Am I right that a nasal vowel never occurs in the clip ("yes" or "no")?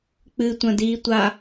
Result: no